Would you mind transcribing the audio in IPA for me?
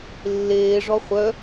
lː eː ʐ ɔ χʷ œ

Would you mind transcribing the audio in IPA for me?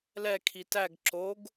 l ɛ kʰ i t æ ɡ ǁ o ɡ

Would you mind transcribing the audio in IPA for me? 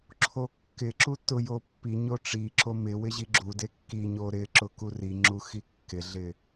ǁʰ o kː ɪ ǁ u t ʊ j o pː i ɲ o ʈ͡ʂ i ǁ o m ɪ w ɪ ʑ i ɡ͡ǁ u d e kː i ɲ o ɾ ɪ ǁ ʊ k u r i ŋ͡ǁ u x i kː ɪ ɮ ɪ

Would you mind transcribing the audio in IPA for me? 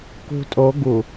k ṳ tʼ o ɡ u

